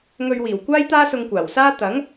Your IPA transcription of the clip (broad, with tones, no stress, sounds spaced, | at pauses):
ŋ ɵ˧ ɥ w iː˨˩ w kʷ aː˥ j t̪ aː˥ s ʊ˧ ŋ kʷ aː˨˩ w s aː˥ t̪ ɐ˨˥ ŋ